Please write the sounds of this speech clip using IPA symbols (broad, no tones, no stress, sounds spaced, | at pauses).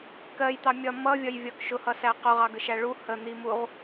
k ɜ j t̪ ɑ mʲ ɒ m ʌ vʲ ɒ j vʲ ɒ k ʃ ʊ h ʌ s æ q ʊ ʁ ɑ ɡ ə ʃ æ ɭ u h ə n̪ i m u ʁ